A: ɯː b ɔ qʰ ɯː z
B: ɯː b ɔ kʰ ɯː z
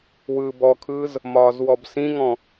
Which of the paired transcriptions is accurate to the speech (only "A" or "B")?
B